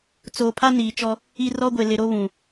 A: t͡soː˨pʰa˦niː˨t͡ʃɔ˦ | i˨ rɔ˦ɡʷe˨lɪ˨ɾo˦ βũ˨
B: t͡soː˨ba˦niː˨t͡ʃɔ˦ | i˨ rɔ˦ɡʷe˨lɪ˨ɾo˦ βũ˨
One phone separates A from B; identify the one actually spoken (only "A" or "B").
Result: A